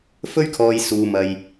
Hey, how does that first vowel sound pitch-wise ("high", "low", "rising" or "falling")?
high